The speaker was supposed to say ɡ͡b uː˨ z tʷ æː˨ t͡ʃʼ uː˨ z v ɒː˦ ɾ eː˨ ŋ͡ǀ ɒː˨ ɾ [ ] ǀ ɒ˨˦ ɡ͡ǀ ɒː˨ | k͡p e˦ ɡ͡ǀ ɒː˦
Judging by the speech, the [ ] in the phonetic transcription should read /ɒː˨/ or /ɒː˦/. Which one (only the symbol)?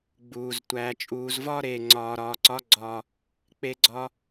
ɒː˨